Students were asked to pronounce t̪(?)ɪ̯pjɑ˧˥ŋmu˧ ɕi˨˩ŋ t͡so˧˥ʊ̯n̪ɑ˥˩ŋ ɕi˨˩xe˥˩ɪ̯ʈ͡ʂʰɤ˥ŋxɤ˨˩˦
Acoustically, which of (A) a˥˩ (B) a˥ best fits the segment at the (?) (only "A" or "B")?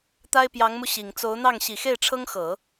B